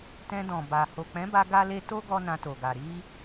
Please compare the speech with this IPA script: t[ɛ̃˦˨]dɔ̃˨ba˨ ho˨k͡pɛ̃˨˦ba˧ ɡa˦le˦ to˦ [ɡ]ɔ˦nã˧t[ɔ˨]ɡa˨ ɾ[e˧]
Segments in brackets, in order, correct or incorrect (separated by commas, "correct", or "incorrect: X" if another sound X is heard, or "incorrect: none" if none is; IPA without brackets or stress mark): incorrect: ɛ̃˧, correct, incorrect: o˨, incorrect: i˧